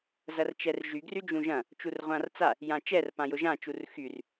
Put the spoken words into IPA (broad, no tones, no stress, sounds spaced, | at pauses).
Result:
z ɐ r t͡ʃ ɛ r ʒ y ɡ r y d͡ʒ ũ ʒ ɐ̃ | t͡ʃ u r ʁʷ ã r t͡s a | j ã t͡ʃ ɛ r p ã j ʊ ʒ ã t͡ʃ u r x y r